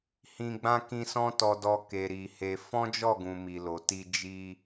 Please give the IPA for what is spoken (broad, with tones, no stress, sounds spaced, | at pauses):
h ĩ˧ ɡ͡b ã˦ k ĩ˧ s ɔ̃˦ t ɔ˧ d ɔ˧ k e˨ ɾ i˨ h e˧ f ɔ̃˦ d͡ʒ ɔ˦˨ ɡ ũ˨ m i˨ l o˨ t i˧ d͡ʒ i˧